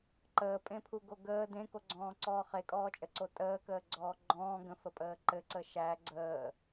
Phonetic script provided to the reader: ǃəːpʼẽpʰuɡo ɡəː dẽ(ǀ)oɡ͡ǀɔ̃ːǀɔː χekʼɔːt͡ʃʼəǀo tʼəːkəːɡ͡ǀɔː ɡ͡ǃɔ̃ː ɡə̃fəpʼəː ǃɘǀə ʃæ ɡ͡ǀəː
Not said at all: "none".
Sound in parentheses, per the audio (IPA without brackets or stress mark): k